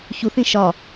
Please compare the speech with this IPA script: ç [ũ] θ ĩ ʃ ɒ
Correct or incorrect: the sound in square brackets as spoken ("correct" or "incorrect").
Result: incorrect